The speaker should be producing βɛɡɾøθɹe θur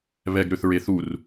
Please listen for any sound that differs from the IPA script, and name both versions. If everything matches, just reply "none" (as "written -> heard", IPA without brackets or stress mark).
none